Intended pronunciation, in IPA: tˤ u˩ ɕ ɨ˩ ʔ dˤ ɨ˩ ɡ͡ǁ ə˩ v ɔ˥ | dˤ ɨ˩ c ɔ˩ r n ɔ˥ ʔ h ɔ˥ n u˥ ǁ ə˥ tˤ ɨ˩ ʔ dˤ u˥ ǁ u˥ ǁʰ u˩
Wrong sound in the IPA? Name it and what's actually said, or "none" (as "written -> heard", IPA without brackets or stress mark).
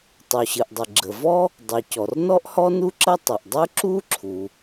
none